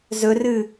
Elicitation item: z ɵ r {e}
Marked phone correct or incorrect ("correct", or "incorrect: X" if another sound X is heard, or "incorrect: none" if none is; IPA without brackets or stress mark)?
incorrect: ɨ